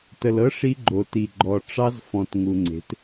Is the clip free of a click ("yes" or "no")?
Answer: no